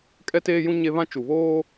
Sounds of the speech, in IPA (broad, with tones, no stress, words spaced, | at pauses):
kʼɛ˦teː˦jũ˦ ɲe˦ βã˦t͡ʃu˨βoː˦